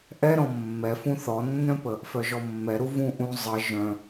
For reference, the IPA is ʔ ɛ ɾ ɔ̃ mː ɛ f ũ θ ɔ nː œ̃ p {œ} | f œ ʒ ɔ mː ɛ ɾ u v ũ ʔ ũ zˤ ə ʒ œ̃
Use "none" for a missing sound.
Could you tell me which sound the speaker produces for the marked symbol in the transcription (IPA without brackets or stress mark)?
ə